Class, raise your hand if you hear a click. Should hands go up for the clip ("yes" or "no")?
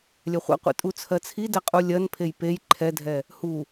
yes